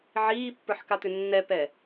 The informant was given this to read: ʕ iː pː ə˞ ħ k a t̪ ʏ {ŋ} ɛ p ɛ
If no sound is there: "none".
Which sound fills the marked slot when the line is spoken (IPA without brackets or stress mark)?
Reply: nː